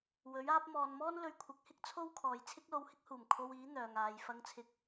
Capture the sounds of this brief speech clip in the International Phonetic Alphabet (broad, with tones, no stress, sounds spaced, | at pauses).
w ɵ˨˥ ɥ aː˥ p̚ m ɔː˨ n m ɔː˥ n l ɵ˧ ɥ kʷʰ ɪ˨˥ k̚ h ɪ˥ k̚ t͡sʰ o˥ w kʰ ɔː˨ j t͡sʰ ɪ˥ k̚ l o˧ w h ɪ˥ k̚ h uː˨˩ m kʰ o˧ w iː˨˥ n̪ œː˨ ŋ aː˨˧ j f ɐ˧ ŋ t͡sʰ ɪ˧ k̚